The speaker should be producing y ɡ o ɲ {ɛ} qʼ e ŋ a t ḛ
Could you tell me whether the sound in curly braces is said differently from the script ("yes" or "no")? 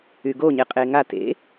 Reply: yes